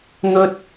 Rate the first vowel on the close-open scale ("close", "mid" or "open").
mid